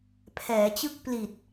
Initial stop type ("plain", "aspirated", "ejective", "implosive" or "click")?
aspirated